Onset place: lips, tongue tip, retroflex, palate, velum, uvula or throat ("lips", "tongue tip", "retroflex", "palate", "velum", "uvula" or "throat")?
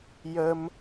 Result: palate